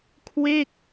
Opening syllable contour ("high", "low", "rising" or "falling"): falling